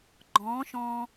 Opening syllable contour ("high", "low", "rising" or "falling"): rising